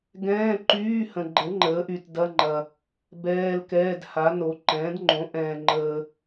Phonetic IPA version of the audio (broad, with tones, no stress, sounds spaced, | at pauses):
ɡ ɛ̃ː˧˥˧ ǃ yː˧˥˧ h ə̃˨ ɡ͡ǃ ə˩˥ ŋ͡ǃ əː˩˥ ʔ y˨ t d ɐ˧˥˧ ŋ͡ǃ ɐ˨ | b ɛː˧˥˧ l k ɛː˧˥˧ d h a˩˥ n o˩˥ ǃ ɛ̃ː˩˥ d ŋ͡ǃ õ˩˥ ʔ ɛ̃ː˨ ŋ͡ǃ əː˨